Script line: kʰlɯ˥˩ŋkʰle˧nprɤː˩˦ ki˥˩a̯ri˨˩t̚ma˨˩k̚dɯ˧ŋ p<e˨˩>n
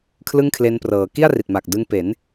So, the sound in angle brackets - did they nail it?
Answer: no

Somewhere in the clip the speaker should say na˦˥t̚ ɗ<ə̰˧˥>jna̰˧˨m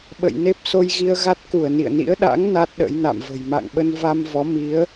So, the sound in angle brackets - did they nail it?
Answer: yes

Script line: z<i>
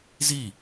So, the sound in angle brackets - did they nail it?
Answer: yes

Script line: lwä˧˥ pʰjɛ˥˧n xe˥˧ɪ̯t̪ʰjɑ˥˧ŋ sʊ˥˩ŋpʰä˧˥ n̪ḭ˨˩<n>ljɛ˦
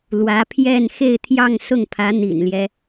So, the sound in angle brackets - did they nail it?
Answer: yes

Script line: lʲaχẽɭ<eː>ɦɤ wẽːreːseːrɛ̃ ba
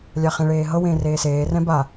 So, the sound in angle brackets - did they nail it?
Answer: yes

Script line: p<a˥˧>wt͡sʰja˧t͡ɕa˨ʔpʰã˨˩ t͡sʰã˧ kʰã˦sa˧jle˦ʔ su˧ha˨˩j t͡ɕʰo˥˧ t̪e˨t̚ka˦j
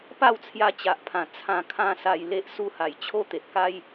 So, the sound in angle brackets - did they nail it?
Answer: yes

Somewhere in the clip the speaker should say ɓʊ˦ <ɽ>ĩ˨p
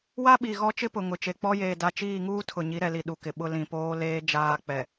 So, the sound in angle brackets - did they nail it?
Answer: no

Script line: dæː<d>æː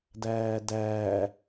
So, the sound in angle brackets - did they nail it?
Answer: yes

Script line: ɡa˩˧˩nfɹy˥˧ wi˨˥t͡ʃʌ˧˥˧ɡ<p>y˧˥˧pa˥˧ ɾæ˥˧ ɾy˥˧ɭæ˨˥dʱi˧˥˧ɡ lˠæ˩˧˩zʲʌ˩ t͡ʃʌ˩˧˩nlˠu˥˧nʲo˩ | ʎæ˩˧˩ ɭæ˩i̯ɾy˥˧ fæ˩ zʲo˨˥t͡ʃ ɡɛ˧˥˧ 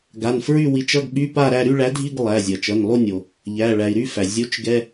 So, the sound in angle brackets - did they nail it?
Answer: no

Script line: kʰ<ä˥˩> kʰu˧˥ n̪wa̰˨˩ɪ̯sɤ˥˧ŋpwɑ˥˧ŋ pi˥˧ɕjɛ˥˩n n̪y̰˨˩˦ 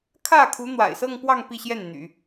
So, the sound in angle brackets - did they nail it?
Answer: yes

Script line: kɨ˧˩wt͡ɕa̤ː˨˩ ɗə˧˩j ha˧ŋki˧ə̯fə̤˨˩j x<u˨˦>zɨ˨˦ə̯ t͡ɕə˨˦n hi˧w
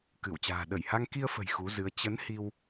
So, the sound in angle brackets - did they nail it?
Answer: yes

